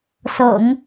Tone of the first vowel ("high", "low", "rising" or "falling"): low